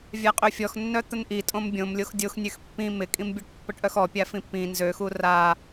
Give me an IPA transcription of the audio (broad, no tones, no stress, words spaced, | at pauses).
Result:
vʲaqʼøfʲɔx nːœt̪ənʔi tʼõmbʲõmlʲox dʲoxnʲøx pːĩ mɪkʼĩmbʲɔʈ pːəʈʔœxɔ pʲafĩpːĩ nzøxu ra